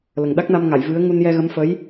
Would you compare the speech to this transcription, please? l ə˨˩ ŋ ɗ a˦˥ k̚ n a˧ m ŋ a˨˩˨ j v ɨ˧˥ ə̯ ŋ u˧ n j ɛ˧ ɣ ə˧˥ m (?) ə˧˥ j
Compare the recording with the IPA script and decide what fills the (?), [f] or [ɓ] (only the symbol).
f